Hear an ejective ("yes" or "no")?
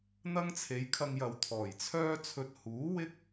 no